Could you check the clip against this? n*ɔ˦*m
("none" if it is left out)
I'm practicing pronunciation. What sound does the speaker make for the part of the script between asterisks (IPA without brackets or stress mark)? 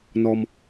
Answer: ɔ˦